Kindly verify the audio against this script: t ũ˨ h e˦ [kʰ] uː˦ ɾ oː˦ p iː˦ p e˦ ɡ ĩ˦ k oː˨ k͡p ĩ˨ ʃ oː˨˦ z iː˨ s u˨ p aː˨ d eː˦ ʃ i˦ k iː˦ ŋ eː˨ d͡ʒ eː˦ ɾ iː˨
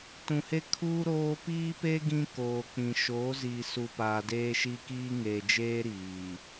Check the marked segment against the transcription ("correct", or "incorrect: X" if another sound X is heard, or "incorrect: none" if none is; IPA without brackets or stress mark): correct